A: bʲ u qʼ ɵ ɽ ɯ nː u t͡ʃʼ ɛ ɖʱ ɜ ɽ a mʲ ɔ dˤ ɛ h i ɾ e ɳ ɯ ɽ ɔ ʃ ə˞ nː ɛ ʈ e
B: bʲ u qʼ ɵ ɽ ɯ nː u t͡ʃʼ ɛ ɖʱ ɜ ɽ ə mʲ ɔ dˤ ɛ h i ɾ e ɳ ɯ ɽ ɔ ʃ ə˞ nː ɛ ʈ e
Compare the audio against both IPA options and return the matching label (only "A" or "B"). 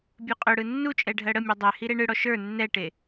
B